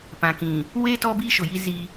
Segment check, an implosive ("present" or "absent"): absent